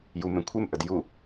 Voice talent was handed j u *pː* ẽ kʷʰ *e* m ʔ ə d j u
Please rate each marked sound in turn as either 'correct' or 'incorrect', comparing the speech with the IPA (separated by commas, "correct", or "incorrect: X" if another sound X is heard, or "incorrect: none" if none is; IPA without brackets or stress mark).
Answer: incorrect: m, correct